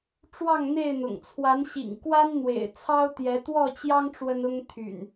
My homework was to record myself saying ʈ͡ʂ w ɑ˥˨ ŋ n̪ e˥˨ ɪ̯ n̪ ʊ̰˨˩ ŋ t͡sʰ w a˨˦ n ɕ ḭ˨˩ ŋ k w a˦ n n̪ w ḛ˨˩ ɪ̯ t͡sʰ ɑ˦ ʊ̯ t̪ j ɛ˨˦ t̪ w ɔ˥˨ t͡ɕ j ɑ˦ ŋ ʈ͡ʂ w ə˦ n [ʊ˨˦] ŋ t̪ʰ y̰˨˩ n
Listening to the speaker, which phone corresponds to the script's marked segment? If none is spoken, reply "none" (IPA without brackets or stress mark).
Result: ʊ˦